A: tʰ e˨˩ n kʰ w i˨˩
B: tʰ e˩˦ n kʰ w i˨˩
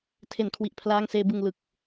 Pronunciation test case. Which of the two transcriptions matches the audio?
A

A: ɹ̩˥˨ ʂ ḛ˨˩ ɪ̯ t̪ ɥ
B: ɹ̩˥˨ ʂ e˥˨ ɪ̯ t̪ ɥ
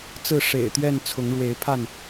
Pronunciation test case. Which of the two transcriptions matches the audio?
A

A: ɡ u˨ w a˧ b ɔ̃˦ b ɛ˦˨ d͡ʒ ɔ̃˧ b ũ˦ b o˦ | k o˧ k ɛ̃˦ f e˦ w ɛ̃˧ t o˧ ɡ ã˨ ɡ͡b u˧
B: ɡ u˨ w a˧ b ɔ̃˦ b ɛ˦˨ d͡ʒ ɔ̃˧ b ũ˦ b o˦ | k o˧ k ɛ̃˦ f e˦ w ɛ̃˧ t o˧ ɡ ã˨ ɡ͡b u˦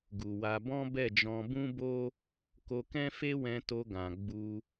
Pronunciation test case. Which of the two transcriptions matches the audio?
A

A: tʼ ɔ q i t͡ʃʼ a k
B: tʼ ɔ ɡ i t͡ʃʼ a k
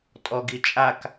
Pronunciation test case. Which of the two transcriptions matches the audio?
B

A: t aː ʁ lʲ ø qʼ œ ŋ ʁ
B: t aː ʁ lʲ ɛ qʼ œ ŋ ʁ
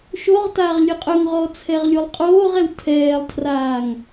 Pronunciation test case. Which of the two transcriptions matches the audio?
A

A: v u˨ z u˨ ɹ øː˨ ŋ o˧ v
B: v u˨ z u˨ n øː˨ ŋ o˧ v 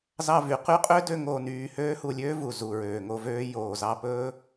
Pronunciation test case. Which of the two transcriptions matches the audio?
A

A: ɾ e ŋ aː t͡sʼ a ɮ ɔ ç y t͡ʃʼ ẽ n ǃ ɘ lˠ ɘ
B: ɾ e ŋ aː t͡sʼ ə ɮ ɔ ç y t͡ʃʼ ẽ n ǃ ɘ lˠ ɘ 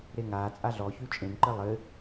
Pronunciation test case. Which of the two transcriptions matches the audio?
A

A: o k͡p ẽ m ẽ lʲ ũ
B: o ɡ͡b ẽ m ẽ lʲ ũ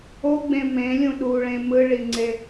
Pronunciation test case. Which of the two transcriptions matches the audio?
B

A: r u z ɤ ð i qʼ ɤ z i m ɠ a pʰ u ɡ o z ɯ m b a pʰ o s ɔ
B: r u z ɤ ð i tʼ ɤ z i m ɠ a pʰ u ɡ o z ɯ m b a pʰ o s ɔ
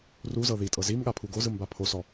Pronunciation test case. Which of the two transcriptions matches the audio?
B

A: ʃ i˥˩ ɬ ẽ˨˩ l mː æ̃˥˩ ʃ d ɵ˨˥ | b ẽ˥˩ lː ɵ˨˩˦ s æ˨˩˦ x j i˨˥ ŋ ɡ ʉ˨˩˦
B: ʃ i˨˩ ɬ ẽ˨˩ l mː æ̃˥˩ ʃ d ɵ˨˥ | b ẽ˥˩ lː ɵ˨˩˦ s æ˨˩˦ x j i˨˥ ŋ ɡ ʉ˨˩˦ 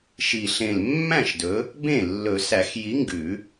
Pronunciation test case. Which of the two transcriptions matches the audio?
B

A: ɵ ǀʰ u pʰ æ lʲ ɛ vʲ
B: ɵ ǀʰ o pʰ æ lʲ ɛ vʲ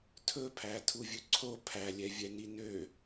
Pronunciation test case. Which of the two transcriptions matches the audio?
B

